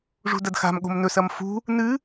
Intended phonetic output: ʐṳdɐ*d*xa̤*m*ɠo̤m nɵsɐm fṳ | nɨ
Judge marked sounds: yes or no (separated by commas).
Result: yes, yes